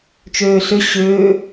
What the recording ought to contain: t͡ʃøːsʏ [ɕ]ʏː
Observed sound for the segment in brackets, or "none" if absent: ɕ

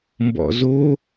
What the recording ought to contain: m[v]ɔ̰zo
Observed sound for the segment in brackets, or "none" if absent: b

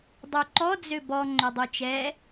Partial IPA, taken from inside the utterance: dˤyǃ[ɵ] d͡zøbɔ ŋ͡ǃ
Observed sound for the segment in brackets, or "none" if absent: ɔ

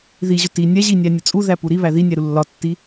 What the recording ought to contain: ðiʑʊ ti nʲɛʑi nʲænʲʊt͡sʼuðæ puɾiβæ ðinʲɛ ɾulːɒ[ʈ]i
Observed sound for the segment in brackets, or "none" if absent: tː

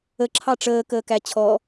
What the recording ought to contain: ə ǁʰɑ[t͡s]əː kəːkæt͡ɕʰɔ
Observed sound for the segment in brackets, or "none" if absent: ʈ͡ʂ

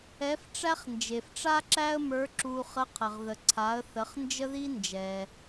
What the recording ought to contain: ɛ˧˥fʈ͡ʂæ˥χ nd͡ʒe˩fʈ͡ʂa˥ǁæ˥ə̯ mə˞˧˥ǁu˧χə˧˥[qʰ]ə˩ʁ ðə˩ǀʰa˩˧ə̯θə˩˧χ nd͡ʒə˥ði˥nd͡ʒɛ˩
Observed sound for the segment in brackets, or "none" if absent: qʰ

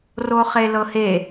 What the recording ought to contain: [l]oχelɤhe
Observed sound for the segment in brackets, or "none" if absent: r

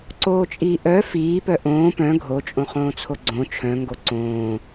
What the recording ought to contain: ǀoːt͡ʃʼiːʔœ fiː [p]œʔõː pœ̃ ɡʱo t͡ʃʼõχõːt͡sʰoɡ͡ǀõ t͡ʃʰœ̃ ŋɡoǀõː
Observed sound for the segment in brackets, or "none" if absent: p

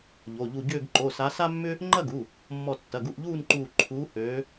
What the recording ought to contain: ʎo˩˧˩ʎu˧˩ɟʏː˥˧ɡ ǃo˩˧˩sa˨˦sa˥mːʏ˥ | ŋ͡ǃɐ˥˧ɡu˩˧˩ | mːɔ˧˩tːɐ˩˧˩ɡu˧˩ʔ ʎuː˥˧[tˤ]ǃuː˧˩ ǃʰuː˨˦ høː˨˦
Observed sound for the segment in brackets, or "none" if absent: n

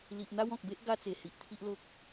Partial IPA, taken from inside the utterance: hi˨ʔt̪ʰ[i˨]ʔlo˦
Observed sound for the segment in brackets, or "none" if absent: i˦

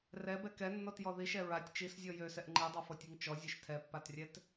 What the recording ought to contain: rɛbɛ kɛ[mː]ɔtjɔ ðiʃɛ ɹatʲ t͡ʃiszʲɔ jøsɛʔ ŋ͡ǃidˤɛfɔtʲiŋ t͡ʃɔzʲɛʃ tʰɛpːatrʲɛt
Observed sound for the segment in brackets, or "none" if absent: nː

